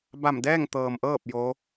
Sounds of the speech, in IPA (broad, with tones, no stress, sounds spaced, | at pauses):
b a˧˩ m d ɛː˥˨ ŋ t̪ ɤː˩ m ʔ ɤː˥˨ p̚ j o˧˥